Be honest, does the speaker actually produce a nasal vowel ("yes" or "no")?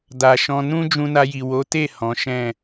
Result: yes